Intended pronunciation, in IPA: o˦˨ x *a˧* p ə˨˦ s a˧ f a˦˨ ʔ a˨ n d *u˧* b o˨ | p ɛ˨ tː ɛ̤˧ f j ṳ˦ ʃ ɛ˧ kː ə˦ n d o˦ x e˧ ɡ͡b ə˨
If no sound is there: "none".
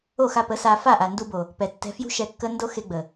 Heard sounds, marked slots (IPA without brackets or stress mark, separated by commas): a˧, u˧